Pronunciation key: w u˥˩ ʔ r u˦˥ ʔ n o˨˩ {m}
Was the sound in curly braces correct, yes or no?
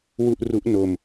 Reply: yes